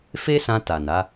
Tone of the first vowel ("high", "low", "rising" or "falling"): high